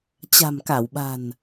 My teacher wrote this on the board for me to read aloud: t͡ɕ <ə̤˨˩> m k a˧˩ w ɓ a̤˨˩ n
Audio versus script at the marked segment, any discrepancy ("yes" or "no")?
yes